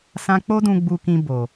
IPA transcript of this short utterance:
s ã˦ k͡p o˦ d ũ˧ ɡ͡b u˧ k ĩ˧ b o˨

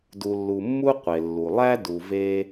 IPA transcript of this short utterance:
d u˨ lː u˨ mː u˥ qʷ e˩ lː u˩ lˠ æ˥ d u˨ v e˦

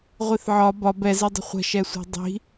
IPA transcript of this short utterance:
ʁʷ i θ ʕ ɒ b ɒ b ɛ z e dˤ ə̤ χʷ ə̤ ʃ ɛ sʷ e̤ dˤ i̤

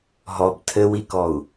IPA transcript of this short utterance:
ɦ ɔ b tʰ ɘ w i k ɔ u̯

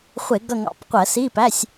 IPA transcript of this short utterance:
χʷ ɪ˧˩˧ ɡ ʌ˦˨ ŋ ɑ̰˧˩˧ p qʷ ɜ˧˩˧ s i˧˥˧ p æ˧˥˧ sʲ

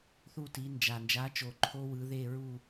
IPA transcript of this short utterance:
θ u˥˨ t i˨˥ n d͡ʒ a˨ n d͡ʒ a˨˥ t͡ʃ o˨ ǃʰ o˦˥ w ɯ˨˥ ð e˥˨ ɹ u˥˨

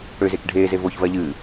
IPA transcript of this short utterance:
ɽ ø z e k ɖʱ eː z e v o ç v ɜ ʎ ɨː

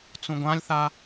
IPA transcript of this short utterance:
t͡s ũ ɡʷ ã lʲ θ a

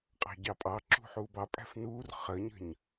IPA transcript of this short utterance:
qʼ ɑ̤ ɟ ɑ pʼ ɑ ǁ ṳ ħ uː b ɑ pʼ æ̤ f n uː r χ ə ɲ ə̤ ɲ

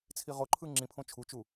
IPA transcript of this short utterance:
t͡sʰ i ʁ o ǃʰ ɯ ŋ͡ǁ ĩ pʰ õ t͡ʃʰ u t͡ʃ u

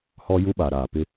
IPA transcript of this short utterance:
h ɔ˦ j u˦ ɓ a˨ ɾ aː˨ p ɪ˦

